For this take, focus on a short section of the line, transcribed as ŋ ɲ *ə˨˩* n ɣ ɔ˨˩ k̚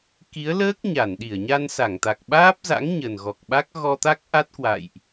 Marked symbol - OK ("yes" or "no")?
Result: yes